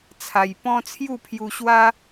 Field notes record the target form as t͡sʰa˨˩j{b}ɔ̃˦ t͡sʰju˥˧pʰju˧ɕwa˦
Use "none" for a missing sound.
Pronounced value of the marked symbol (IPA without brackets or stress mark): p